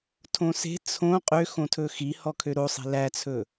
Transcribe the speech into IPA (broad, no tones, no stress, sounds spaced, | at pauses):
tʰ õ s e̤ t͡sʰ õ qʼ ø x õ tʰ ɵ x i h ɔ kʰ ø ɾ o sˤ i̤ l æ t͡sʰ ɵ